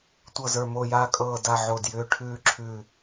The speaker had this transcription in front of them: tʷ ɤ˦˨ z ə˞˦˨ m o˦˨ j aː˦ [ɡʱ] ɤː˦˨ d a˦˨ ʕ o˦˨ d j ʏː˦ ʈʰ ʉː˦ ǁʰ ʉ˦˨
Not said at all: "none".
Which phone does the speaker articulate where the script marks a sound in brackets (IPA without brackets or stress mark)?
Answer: kʼ